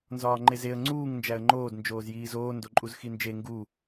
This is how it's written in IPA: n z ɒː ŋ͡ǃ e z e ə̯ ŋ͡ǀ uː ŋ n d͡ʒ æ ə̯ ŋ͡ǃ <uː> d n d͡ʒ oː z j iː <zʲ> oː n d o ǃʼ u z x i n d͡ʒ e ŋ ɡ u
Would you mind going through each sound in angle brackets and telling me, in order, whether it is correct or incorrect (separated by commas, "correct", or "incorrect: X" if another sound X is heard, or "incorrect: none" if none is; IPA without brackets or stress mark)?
incorrect: oː, incorrect: z